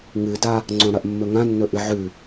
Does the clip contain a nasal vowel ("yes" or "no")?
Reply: yes